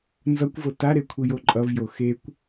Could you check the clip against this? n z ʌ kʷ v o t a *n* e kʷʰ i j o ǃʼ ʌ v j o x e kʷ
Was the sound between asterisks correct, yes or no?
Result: no